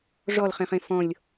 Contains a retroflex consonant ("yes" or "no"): yes